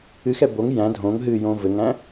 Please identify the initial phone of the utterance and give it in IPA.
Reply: ɨ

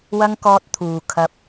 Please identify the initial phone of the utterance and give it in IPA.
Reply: w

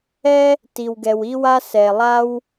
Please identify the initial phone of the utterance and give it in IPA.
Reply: ɛ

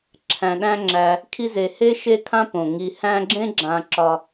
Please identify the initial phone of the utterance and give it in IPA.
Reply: ǁʰ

